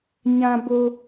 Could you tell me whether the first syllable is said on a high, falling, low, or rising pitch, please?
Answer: high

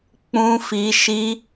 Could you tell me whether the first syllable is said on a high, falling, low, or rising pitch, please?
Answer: high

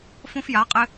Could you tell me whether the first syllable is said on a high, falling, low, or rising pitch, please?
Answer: high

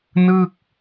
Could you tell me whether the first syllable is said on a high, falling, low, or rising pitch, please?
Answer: falling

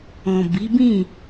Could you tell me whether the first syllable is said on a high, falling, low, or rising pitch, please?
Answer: low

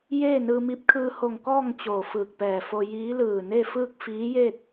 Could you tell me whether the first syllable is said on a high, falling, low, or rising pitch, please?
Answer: falling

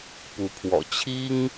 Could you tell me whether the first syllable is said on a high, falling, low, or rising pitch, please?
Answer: rising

